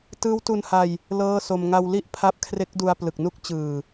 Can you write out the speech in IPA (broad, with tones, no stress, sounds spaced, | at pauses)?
t ɯː˦˥ w t u˧ n h a˧ j | l ɤː˥˩ s o˧ m ŋ a˧ w l i˥˩ ʔ pʰ a˦˥ p̚ kʰ r e˦˥ k̚ d u˧ a̯ p l ɯ˨˩ k̚ n u˥˩ k̚ t͡ɕ ɯː˨˩